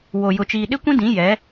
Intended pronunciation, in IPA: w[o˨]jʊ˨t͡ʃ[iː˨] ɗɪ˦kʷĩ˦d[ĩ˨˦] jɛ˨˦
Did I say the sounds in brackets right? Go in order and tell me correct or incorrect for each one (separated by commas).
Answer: correct, correct, correct